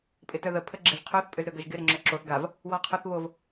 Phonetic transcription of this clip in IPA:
pʼ ɪ t œ ð ə pʰ ə ɡ͡ǁ ɪ ʒ qʰ ø θ pʼ ʏ z ɾ ø ɡ ɐ ʒ ɡ ɪ ɾ ɪ ŋ͡ǁ ʏ ǁ o θ ɡ a v | w ɔ qʰ ʊ θ β o v

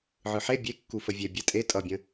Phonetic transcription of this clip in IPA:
ʕ ɯ ħ e bʲ e kː u f ə vʲ e bʲ ɛ tʼ e tʼ ʌ bʲ ə̃

